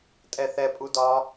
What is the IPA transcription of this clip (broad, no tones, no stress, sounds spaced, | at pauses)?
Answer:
tʼ ɛ θ ɛ pʼ u d ɒ